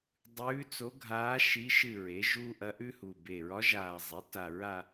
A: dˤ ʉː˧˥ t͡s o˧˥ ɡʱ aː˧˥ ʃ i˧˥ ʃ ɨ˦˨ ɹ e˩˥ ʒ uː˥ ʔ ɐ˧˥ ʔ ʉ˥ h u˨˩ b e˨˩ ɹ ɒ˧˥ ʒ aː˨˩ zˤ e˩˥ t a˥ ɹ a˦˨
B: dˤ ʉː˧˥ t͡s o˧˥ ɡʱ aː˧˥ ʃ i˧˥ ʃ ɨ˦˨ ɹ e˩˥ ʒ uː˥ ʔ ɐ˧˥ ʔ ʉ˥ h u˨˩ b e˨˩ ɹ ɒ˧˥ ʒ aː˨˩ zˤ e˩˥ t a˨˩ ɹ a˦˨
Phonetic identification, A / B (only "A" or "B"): B